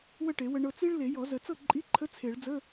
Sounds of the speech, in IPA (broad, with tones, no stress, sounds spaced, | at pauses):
w ə˥˩ ʈ e˨˩˦ w ə˧ ɳ ɤ˧ t͡s i˥ ɭ l e˨˩˦ j ɔ˨˩˦ z ə˨˩˦ t͡s ɤ˥˩ ǃʼ i˧˥˧ ǃʰ ə˧˥˧ t͡sʰ e˨˩˦ ɭ d͡z ə˧˥˧